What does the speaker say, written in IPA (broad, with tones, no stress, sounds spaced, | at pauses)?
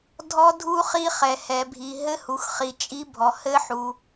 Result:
dʱ ɔ˦˥ dʱ u˦˥ χ i˦˥ χ ɛ˨ h ɛ˨ bʱ i˨ ɦ ɘ˦˥ h u˨ x χ i˨ t͡ʃʼ i˦˥ bʱ ɔ˨ h ɘ˦˥ ħ u˨